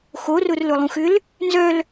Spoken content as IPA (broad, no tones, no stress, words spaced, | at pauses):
xorʊrlʊlˠũx ʏl | nzœl